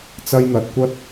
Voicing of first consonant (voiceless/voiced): voiceless